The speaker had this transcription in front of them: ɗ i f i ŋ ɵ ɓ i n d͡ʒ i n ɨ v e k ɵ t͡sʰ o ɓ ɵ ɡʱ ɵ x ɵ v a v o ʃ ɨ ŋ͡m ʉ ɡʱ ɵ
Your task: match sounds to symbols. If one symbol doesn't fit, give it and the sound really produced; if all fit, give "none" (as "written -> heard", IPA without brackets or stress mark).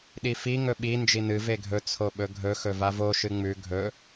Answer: k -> ɡʱ